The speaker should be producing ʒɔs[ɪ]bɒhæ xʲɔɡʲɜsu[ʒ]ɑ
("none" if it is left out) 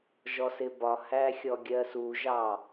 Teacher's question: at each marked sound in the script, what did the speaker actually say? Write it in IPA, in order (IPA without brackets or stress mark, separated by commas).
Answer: ɪ, ʒ